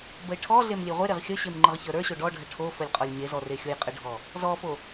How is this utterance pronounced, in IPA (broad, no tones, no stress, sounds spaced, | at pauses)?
b ə ɪ̯ ʈʰ ɔ ɮ e m lʲ e ʁʷ e ɾ e ʁ xʲ ə ɕ e m ŋ͡ǃ ə ʁ ç ə˞ ɾ ə˞ ɕ o ɖ ɔ ɖʱ ə ʈʰ o f ə lʲ qʼ ɔ lʲ ɲ e z ɔ r e xʲ o j qʼ ə ɖʱ ɔ | z ɔ f o